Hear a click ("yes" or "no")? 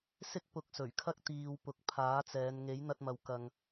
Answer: no